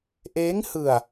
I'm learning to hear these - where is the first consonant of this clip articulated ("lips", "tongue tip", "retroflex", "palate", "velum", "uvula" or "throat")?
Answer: throat